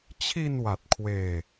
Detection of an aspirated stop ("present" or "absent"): present